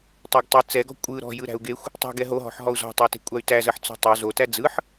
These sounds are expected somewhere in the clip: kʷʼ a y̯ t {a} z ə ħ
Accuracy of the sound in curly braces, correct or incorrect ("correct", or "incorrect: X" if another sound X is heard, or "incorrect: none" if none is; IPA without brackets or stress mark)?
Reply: incorrect: æ